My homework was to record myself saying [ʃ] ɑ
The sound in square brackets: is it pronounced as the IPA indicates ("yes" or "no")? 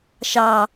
yes